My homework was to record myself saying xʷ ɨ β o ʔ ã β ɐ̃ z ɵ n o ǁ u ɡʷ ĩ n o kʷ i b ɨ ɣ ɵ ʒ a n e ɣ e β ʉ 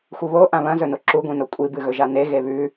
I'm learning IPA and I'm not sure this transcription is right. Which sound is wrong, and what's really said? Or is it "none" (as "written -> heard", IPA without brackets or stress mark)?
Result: kʷ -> kʷʼ